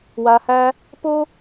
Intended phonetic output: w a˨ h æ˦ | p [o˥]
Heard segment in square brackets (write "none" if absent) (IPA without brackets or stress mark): o˥